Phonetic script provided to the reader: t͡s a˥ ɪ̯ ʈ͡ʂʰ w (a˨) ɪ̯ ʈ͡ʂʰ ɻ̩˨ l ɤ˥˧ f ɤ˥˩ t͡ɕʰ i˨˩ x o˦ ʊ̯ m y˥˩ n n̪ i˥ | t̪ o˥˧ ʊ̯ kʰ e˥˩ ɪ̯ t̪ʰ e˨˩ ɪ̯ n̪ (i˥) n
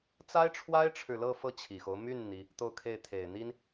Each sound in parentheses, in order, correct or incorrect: incorrect, correct

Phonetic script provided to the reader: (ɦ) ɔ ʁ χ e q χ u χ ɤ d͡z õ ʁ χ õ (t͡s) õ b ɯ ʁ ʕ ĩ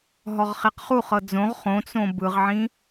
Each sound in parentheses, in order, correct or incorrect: correct, correct

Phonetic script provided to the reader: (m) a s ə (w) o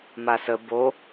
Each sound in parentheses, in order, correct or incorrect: correct, incorrect

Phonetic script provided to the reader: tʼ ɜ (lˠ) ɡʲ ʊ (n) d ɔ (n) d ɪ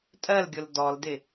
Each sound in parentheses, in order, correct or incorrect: incorrect, incorrect, incorrect

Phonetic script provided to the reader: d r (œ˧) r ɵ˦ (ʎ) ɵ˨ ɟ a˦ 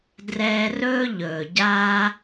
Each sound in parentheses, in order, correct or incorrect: incorrect, correct

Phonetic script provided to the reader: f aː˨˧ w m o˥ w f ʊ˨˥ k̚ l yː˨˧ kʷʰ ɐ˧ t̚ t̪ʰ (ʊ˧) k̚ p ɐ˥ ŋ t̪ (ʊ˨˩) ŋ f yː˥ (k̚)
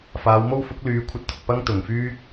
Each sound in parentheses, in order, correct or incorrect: incorrect, correct, correct

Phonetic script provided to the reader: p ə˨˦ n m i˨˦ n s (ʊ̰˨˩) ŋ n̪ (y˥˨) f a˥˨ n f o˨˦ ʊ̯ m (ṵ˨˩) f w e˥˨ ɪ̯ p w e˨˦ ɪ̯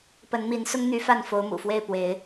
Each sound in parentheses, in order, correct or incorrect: incorrect, incorrect, correct

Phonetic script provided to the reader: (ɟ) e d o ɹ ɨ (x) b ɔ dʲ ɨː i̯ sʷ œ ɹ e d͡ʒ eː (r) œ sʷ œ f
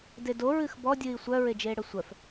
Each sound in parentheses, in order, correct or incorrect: incorrect, correct, incorrect

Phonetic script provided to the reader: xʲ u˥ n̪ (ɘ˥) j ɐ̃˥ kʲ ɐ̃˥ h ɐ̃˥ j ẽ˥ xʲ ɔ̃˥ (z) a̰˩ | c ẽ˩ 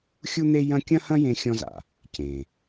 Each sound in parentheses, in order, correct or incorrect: incorrect, correct

